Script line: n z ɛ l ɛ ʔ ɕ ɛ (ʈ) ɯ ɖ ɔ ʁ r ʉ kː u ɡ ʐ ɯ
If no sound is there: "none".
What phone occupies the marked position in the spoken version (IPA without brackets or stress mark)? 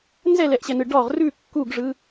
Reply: n